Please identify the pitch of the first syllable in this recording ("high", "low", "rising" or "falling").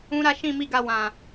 high